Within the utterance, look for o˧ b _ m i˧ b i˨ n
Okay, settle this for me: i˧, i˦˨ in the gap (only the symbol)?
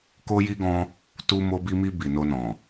i˧